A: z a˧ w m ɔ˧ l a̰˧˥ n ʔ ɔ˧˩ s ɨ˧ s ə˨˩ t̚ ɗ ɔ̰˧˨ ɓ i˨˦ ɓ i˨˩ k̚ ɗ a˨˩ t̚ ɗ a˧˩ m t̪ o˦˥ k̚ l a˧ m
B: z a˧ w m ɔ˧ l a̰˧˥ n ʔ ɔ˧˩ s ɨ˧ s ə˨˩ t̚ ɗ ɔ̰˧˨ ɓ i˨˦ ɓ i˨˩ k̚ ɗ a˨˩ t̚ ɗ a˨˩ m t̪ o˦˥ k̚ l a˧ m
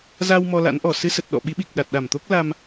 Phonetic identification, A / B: A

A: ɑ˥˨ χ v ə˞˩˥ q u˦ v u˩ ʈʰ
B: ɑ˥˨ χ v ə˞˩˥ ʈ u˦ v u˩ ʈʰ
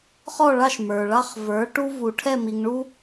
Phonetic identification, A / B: B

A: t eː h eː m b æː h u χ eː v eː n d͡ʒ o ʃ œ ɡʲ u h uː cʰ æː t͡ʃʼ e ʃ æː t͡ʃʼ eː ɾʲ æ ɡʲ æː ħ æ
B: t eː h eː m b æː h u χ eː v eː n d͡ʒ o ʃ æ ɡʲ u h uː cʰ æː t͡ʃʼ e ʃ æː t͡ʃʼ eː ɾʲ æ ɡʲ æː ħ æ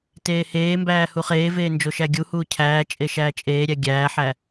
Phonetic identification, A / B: B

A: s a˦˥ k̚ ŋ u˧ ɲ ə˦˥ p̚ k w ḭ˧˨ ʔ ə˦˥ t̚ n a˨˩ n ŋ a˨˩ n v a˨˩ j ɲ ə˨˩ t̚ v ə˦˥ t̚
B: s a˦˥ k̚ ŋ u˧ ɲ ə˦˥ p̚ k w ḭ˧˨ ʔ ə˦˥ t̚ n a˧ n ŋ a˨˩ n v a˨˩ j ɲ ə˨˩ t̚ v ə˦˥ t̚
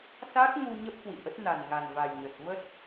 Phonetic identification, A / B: A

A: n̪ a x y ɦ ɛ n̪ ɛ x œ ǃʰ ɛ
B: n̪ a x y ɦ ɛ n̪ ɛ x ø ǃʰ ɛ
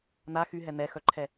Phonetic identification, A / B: A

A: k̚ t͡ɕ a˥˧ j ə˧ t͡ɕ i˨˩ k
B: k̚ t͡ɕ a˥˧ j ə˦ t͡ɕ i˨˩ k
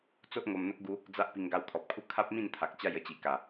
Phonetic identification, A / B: B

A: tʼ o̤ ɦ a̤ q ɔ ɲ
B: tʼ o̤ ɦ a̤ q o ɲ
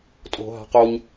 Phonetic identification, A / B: B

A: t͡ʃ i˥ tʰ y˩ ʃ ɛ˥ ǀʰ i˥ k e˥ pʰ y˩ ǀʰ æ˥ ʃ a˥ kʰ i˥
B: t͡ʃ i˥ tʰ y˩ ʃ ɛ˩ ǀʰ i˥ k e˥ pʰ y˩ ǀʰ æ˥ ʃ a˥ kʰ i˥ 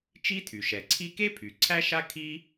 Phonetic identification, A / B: B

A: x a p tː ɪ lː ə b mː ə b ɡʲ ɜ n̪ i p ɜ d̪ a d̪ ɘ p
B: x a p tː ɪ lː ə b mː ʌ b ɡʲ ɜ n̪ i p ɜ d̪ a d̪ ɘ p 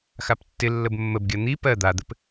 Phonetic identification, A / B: A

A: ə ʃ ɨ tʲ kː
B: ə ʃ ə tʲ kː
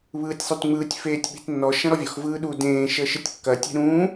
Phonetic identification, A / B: A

